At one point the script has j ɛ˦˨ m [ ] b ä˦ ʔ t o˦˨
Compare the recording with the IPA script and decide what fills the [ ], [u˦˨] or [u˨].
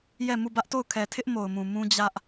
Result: u˦˨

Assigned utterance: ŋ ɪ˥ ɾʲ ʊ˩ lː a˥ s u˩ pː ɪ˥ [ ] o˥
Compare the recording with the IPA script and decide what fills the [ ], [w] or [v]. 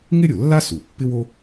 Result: w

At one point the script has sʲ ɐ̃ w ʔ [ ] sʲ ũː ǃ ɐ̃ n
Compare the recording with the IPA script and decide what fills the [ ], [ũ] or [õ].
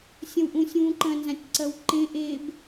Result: ũ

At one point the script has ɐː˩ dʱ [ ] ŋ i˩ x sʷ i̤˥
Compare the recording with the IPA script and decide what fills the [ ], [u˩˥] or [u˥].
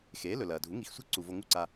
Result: u˩˥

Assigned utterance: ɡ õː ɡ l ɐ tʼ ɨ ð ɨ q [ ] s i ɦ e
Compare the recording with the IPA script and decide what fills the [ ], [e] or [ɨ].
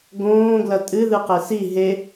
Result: e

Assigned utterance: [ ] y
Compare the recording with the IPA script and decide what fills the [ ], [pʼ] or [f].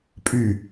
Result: pʼ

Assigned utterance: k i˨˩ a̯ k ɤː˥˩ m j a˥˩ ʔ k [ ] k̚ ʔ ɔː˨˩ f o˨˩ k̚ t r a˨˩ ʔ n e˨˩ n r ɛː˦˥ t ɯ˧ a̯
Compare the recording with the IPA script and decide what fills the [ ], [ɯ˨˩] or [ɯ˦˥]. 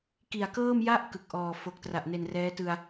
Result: ɯ˨˩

